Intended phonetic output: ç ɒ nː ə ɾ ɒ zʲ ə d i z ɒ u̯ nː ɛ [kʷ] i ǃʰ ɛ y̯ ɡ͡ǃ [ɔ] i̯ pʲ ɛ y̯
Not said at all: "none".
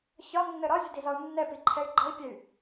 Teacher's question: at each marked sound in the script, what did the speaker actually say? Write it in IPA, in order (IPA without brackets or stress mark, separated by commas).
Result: p, ʌ